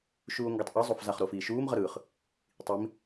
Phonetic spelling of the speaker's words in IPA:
ʃ uː o̯ ŋ ɡ ɛ tˤ ʔ i zˤ o f z a χ ɾ o f iː ʃ uː m ʁ ʌ ɾ ɯː χ | tˤ i m

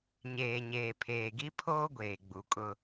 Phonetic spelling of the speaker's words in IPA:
ɲ eː˨ ɲ eː˨ pʰ eː˨ ɡ i˦ pʰ oː˦ ɡʷ eː˨ ɡ͡b u˨ kʼ ʊ˦

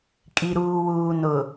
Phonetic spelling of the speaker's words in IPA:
kʼ i˨ ɾ uː˨ w uː˨ n ʊ˨

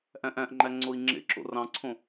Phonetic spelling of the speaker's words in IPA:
ʔ æ̃ ʔ æ̃ ʔ ŋ͡ǃ æ ŋ͡ǀ o i̯ ŋ͡ǁ ḛ ǁ o̰ r ɑ̃ ǀʰ õ

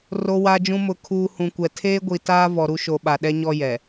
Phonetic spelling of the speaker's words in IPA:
r o˨ w a˨ d͡ʒ ũ˨ m ʊ˨ kʰ uː˨ h ũ˨ kʷ ɛ˨ tʰ eː˦ ɡʷ i˨ t aː˦ v ɔ˨ ɾ u˦ ʃ o˨ ɓ a˨ ɗ ɛ˦ ɲ ɔ˦ j ɛ˨

